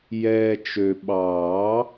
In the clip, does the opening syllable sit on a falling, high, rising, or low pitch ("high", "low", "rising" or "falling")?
low